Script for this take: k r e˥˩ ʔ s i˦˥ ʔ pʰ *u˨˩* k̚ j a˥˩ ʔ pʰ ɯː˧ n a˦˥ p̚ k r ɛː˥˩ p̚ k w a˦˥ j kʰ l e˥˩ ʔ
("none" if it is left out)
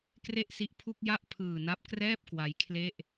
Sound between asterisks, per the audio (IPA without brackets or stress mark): u˥˩